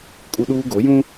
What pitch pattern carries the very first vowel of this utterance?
high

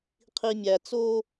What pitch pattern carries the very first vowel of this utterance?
low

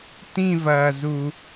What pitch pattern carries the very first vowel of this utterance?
falling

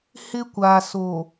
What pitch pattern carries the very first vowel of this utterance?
high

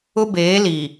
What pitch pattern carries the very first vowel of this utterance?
high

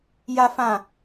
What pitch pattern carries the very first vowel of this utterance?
high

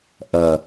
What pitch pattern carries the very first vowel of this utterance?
low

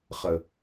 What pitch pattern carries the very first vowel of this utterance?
low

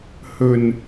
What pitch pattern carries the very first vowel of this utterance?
low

